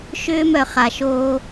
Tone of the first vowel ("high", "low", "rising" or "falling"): high